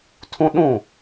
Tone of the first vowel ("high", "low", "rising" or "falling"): high